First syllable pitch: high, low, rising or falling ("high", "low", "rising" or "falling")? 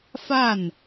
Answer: falling